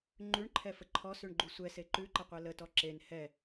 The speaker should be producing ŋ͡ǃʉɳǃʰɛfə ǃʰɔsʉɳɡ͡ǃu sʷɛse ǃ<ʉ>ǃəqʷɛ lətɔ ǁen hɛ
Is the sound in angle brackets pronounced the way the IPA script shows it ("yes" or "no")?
yes